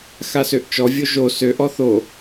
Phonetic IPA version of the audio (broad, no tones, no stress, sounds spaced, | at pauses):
x a s ø ʔ t͡ʃ ɔ vʲ o ʒ o s ø ʔ ɔ θ o